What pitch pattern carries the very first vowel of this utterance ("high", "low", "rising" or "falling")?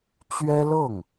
high